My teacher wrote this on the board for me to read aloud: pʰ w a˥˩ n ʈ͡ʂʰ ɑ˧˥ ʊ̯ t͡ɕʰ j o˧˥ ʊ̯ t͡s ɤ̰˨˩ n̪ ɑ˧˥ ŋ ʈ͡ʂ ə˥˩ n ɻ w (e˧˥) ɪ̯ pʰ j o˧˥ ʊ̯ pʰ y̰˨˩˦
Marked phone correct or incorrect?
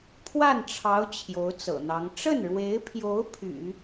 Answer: correct